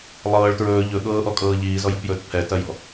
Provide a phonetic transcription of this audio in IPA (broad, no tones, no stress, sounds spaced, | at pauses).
lˠ ɤː ɭ t ɹ ɵː ʎ ɵ ɠ ɤː ʔ ɔ kʼ ɤː ʎ iː z ɔ j ɔ̤ p j ɵː t pʰ ɛ t ɐ j ɔ̤